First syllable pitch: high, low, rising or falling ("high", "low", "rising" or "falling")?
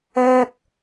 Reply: high